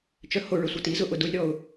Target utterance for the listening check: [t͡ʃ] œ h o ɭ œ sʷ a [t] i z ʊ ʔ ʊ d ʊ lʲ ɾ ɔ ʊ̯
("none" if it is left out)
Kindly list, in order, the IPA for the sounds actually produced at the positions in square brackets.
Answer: t͡ʃ, t

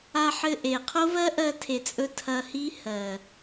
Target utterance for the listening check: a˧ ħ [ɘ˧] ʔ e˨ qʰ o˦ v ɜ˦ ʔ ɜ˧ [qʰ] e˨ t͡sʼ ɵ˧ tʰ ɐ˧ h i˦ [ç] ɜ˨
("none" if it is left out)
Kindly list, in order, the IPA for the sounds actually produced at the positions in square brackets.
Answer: ɘ˧, tʰ, h

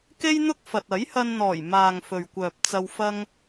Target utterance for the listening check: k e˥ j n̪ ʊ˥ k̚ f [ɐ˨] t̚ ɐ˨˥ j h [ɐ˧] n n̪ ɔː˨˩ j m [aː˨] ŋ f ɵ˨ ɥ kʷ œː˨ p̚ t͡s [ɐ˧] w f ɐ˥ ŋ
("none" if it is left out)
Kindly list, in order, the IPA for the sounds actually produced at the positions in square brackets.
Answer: ɐ˨, ɐ˧, aː˨, ɐ˧

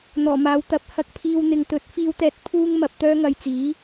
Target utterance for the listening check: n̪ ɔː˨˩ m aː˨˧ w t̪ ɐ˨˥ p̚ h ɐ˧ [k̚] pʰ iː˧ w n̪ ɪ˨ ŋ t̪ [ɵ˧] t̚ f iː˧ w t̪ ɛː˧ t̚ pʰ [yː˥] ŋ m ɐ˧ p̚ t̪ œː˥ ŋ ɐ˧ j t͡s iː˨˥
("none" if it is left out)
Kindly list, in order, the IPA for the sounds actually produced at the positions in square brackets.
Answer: k̚, ɵ˨˥, uː˥

